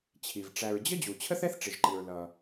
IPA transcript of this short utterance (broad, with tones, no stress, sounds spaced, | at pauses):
t͡ɕʰ i˩ v ʈ͡ʂ æ˩ ɹ d͡ʑ ə˥ d͡ʑ u˩ t͡ɕʰ ə˥ θ ɛ˥ θ ʈ͡ʂ ɪ˩ ʒ ǃ i˩ ɹ l ʌ˩